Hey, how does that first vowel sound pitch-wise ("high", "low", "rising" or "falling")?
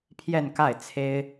falling